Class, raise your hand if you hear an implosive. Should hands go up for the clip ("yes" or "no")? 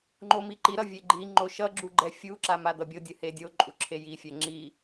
no